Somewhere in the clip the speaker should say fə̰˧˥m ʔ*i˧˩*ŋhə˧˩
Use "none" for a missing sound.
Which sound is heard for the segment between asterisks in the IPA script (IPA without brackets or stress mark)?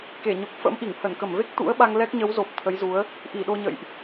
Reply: i˧˩